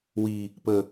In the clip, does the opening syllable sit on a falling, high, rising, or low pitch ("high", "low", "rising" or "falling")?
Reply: low